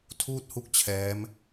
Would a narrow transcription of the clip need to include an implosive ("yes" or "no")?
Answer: no